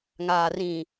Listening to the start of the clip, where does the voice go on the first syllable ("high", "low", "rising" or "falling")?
low